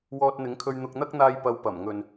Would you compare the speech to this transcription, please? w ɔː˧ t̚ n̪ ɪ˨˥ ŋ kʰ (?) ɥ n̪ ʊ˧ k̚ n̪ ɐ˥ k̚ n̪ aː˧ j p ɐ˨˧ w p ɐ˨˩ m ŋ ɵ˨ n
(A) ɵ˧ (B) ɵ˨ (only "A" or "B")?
A